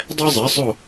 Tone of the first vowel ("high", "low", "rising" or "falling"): high